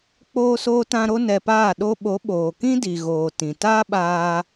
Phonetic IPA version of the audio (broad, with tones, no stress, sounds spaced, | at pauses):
k͡p oː˦ s oː˦ t ã˦ ɾ o˦ n ɛ˧ p aː˦˨ ɗ o˧ ɓ o˨˦ ɓ oː˨ k ĩ˦ d i˨ ɣ oː˨ t ĩ˨ t aː˦ ɓ aː˧